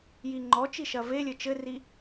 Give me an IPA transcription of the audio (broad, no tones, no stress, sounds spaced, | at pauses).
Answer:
j i ŋ͡ǃ ɔ t͡ʃ i ʃ ɐ v e lʲ ɘ t͡ʃ ɘ r i